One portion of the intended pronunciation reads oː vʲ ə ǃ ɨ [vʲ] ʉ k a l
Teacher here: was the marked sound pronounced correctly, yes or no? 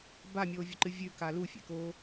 yes